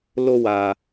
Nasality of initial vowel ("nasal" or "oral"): oral